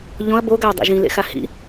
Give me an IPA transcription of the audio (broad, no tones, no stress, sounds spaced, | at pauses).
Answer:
ʎ õ ɐ̯ b o ɡ a w dˤ ḭ ʒ ĩ l ḛ x a h ḭ